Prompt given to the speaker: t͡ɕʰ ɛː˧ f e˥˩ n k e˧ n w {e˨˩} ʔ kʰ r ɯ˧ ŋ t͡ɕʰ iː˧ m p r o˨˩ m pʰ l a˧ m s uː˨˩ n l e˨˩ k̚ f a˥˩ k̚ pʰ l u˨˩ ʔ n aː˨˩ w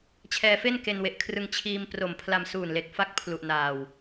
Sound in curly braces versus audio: correct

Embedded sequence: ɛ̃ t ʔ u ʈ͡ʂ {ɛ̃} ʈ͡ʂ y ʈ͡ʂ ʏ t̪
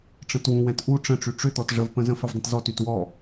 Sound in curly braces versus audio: incorrect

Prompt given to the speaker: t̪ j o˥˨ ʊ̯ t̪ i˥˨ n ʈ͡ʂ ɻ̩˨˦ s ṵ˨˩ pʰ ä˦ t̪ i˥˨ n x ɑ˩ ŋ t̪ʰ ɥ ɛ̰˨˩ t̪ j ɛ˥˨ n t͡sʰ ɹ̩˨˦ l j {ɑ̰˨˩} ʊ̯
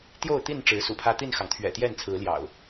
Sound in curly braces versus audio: correct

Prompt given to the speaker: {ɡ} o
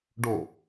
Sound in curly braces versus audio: incorrect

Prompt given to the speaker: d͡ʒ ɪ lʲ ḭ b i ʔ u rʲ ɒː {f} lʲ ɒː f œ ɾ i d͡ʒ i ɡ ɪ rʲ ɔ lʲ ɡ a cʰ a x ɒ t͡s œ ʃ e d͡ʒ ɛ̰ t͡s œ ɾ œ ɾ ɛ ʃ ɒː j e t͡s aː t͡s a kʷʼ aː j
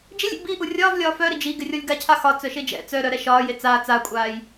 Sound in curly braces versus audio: incorrect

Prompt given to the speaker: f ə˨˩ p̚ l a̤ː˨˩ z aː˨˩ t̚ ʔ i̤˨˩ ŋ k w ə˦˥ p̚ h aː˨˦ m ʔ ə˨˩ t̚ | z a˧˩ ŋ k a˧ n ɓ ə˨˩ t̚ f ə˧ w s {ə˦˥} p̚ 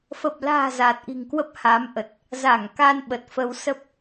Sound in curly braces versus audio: correct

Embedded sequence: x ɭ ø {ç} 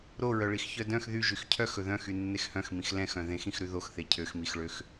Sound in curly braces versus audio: incorrect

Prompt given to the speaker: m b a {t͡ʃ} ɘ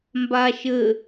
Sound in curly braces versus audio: incorrect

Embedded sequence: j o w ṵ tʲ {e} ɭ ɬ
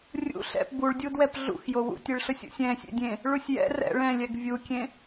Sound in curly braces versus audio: correct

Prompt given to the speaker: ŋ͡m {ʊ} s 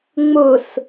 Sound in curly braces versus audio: correct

